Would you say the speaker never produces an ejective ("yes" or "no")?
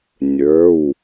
yes